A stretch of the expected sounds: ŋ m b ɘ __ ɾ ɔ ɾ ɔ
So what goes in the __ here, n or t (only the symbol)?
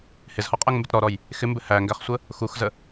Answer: t